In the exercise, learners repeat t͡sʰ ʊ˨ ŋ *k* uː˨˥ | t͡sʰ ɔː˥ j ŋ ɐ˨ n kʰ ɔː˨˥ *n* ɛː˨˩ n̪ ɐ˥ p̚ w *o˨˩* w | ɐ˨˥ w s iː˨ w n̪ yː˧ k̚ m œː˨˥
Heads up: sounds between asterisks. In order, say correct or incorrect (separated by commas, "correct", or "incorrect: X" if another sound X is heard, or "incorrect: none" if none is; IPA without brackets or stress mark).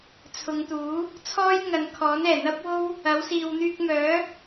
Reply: incorrect: t̪, correct, incorrect: o˥